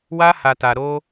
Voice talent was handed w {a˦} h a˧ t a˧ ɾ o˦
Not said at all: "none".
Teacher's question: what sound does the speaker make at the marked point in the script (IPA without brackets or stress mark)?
a˦